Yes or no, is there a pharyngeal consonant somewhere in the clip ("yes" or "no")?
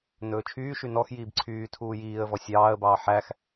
yes